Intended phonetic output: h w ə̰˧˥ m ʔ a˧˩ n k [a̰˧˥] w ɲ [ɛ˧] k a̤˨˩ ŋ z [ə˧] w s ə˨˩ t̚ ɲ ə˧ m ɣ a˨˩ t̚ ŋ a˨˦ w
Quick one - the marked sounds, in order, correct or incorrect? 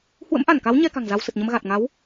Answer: incorrect, correct, incorrect

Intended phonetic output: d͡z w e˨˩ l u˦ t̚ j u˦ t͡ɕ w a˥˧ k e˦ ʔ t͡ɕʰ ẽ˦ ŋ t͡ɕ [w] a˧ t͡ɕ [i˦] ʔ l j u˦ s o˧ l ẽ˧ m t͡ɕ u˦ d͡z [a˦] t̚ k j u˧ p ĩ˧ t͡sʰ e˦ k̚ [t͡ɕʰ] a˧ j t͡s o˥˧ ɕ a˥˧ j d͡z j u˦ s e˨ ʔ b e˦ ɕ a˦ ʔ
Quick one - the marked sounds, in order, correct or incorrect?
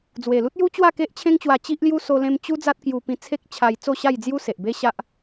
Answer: correct, correct, correct, correct

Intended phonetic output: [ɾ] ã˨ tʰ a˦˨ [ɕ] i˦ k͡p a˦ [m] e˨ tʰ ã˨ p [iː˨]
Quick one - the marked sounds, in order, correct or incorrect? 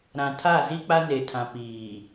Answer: correct, incorrect, incorrect, correct

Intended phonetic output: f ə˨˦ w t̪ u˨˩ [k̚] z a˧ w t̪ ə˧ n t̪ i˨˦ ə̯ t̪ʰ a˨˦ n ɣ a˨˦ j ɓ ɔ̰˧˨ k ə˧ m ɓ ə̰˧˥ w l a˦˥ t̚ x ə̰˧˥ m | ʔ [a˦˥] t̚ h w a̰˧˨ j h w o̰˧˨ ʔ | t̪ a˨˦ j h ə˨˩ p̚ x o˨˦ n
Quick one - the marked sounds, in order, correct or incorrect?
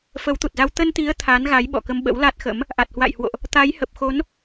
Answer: incorrect, incorrect

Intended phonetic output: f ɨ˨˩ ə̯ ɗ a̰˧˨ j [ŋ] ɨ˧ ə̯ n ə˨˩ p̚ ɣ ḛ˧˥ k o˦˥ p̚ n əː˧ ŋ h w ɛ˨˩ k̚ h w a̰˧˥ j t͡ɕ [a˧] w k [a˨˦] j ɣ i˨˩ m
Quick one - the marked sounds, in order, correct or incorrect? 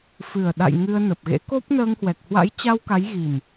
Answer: correct, correct, correct

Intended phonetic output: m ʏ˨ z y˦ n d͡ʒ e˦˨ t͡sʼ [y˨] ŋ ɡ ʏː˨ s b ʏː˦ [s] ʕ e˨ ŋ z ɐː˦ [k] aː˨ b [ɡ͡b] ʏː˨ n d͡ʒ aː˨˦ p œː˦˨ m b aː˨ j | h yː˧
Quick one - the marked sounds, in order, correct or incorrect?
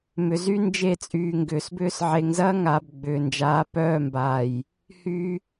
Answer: incorrect, correct, incorrect, correct

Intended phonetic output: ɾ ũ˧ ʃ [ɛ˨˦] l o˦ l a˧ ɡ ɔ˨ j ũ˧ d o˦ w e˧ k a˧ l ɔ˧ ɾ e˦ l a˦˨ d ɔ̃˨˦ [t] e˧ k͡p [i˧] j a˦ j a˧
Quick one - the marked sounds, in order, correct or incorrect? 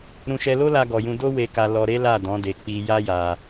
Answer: incorrect, incorrect, correct

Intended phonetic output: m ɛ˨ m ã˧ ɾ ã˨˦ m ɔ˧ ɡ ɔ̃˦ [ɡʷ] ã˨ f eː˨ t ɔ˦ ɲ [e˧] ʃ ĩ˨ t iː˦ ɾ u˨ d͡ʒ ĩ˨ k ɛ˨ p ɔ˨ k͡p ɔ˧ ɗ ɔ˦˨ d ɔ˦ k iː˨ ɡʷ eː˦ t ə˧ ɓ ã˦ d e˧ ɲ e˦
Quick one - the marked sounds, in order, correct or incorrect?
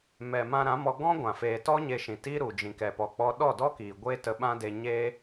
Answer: correct, correct

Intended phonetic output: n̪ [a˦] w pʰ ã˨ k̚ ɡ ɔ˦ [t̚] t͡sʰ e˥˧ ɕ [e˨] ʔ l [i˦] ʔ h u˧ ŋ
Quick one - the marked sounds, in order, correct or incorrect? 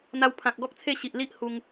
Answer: incorrect, incorrect, incorrect, correct

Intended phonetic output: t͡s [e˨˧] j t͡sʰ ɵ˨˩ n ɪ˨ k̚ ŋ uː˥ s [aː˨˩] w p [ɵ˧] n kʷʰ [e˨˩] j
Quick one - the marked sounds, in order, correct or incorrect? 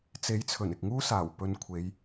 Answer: incorrect, correct, correct, incorrect

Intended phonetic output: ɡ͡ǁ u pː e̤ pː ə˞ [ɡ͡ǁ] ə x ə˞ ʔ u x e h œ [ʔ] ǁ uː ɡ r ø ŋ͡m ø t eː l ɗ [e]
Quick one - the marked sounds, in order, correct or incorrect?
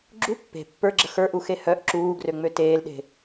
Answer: correct, correct, incorrect

